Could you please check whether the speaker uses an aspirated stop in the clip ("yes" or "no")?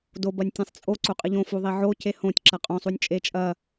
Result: no